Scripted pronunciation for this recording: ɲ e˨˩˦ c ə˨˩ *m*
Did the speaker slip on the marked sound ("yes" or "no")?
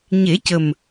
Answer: no